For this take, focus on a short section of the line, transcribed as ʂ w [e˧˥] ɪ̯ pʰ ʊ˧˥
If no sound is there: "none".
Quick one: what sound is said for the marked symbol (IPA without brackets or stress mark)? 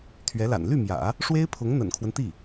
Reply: e˥